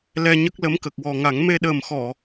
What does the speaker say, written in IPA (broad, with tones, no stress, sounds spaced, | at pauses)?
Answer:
l ɛ˧ ɲ ə˦˥ k̚ l ə˧˥ m k ə˨˩ k̚ w ɔ˨˩ ŋ a˨˩˦ ŋ m e˧ ɗ əː˨˩ m x ɔ˨˩˨